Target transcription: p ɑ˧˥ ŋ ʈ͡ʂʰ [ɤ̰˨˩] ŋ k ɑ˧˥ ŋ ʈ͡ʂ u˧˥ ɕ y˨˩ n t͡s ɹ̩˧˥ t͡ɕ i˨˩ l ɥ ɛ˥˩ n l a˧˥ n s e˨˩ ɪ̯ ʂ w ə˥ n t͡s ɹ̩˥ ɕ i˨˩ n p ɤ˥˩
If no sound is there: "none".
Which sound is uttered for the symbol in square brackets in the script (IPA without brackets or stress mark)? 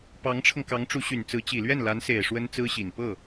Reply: ɤ˧